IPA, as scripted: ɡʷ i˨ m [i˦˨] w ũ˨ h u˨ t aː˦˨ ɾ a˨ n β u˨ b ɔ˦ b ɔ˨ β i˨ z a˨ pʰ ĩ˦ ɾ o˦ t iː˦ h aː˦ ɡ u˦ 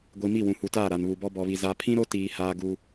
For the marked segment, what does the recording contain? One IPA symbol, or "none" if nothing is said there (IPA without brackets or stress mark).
i˦˨